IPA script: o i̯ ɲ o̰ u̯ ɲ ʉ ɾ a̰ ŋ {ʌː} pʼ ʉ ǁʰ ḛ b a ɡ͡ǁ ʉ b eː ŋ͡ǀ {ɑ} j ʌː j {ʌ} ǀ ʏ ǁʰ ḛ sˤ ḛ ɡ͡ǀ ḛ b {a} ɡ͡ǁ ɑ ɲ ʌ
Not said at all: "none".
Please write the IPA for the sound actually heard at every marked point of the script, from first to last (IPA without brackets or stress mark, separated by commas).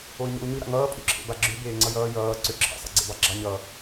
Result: ʌː, ʌ, ʌː, ɑ